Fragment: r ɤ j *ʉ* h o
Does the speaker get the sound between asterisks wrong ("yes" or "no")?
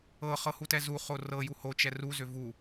yes